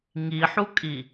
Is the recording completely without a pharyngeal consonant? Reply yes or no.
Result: no